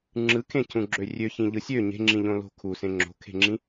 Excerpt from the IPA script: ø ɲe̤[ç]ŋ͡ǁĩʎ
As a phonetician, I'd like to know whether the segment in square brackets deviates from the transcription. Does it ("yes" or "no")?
yes